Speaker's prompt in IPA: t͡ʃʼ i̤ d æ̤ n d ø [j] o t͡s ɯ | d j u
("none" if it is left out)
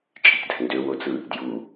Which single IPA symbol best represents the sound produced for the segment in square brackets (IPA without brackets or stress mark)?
w